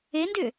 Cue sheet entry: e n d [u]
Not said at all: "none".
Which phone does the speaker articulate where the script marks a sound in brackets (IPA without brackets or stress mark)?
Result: ʏ